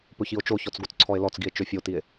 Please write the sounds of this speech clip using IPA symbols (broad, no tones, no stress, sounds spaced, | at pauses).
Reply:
p ɵ ç i o̯ t͡ʃ o ç ɔ t͡s ɡ o t͡s ǀʰ ɔ e̯ l ɔ t͡s ɡ i e̯ t͡ʃ ø fʲ o t i e̯